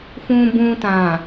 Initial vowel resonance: nasal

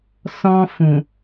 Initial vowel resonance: nasal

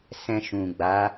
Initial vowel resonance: nasal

